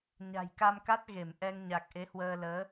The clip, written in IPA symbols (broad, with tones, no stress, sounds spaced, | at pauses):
ɲ a̤˨˩ j k a˧ m k a˦˥ t̚ ɣ e˧˩ m ʔ ɛ˧ ŋ ɲ a˨˩ k̚ ʔ e˨˦ h w əː˧ l əː˨˦